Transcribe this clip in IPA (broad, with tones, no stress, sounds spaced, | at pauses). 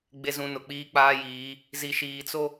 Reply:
ɡ͡b e˨ z ũ˨ n ʊ˨ k͡p iː˦ k͡p aː˦ j iː˨˦ | z i˨ ʃ iː˨ t͡s o˦